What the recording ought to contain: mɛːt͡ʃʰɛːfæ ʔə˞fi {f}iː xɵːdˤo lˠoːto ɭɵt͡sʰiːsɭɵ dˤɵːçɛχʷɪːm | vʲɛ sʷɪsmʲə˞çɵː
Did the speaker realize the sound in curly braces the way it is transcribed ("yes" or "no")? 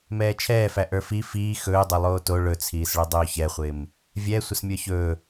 yes